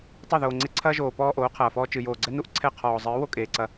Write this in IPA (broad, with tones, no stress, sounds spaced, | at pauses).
tˤ e˦˨ ð oː˨ ŋ͡ǀ e˧ ǀʰ ɐː˦ ʒ oː˨ p ɔː˧ ʔ oː˨˦ qʰ ɐː˨ f ɔː˧ t͡ʃ ɨ˨ j oː˨ ɡ͡ǀ ɛ˦ n u˦ ʔ ǀʰ ɛ˦˨ qʰ ɔː˨ zˤ ɨː˨˦ w o˦ kʼ eː˨ ǀ ɐ˧